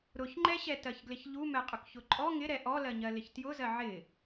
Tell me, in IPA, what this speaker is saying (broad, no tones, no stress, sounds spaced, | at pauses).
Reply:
ɾ ʊ ç ŋ͡ǃ ɛ ɕ ɛ t ɜ ç ɡ l ɪ ç ʎ u m ɛ qʼ ʊ k ç ʊ ǃʼ ɔ ŋ ɪ ɾ ɛ ʔ ɔ l ɜ ɲ ɜ l ɪ ç t j ʊ z ɜ ʕ ɪ